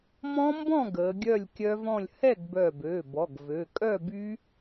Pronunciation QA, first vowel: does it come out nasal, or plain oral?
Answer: nasal